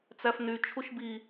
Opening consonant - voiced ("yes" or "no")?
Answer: no